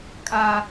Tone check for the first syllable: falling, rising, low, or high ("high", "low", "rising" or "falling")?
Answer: high